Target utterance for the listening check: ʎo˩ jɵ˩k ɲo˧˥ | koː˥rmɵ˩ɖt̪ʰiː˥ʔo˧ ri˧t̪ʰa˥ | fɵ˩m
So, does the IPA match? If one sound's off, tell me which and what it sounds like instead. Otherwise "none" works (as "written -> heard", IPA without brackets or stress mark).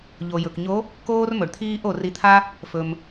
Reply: none